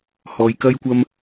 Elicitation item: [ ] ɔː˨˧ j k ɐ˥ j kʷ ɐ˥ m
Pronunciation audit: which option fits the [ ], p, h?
h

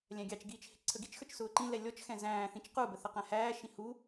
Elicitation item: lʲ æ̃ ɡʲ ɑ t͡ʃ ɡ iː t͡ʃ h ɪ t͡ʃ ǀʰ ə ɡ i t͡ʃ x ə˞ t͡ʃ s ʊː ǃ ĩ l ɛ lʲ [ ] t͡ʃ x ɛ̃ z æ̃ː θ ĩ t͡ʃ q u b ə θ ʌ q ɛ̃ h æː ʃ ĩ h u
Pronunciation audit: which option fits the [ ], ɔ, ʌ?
ɔ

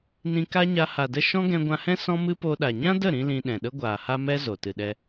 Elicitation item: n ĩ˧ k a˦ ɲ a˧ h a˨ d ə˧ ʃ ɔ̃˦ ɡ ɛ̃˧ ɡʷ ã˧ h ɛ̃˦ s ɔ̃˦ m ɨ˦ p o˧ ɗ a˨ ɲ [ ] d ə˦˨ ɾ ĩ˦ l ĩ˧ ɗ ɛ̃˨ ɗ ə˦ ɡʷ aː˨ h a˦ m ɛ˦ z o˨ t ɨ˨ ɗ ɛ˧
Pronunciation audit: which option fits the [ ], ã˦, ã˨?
ã˦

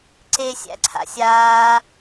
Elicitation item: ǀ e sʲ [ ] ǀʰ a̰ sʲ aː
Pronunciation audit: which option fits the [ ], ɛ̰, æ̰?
æ̰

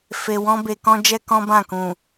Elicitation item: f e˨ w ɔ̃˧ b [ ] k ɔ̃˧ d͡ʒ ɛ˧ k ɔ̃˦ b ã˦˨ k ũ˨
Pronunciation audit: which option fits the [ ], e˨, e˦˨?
e˨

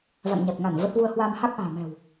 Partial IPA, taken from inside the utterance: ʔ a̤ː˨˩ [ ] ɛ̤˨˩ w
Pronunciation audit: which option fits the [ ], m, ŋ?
m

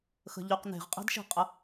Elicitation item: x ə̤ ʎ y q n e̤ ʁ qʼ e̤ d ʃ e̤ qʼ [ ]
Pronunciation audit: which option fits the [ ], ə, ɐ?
ə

